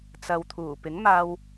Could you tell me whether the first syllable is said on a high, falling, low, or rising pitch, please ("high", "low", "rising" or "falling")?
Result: low